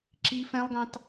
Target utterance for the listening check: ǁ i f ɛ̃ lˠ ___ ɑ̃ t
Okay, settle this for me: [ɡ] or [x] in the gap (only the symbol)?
ɡ